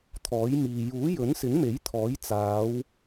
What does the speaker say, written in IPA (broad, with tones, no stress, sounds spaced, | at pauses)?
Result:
t̪ʰ ɔː˨˥ j m iː˨ j uː˨˥ j ɵ˨˥ n s ɪ˨˥ ŋ m e˨˥ j t̪ʰ ɔː˨˥ j t͡s aː˨˧ w